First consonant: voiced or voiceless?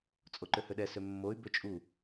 voiceless